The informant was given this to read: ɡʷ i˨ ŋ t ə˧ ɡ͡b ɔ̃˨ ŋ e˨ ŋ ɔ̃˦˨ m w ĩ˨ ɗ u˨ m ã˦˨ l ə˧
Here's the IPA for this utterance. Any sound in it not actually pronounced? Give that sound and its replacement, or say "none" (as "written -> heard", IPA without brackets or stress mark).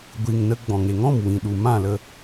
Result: t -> n